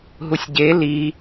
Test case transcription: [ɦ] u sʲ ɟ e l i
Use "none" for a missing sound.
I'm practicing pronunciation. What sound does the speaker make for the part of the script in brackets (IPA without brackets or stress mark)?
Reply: ɦ